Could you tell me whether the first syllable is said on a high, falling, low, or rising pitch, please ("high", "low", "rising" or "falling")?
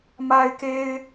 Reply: high